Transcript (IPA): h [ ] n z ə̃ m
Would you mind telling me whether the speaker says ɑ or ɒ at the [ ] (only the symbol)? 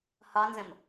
ɒ